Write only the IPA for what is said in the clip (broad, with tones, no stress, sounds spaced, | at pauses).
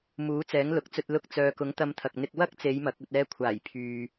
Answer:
m uː˨˥ t͡s ɛː˨˥ ŋ l ʊ˨˥ k̚ t͡s ɵ˧ t̚ l ʊ˧ k̚ t͡s œː˨ k ʊ˨˥ ŋ t̪ ɐ˧ m t̪ʰ ɐ˨ k̚ n̪ ɪ˧ k̚ w ɐ˥ k̚ t͡s e˨˧ j m ɐ˨ k̚ ɵ˨ t̚ ɛː˧ kʷʰ aː˨˩ j pʰ yː˨